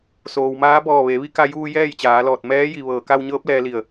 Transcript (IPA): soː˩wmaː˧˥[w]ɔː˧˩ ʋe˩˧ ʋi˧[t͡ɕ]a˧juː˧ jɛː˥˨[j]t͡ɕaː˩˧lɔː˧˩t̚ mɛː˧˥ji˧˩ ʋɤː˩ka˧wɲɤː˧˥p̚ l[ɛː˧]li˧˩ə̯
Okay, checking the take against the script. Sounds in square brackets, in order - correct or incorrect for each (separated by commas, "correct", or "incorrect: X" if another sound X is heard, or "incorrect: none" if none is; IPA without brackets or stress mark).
incorrect: b, incorrect: k, correct, correct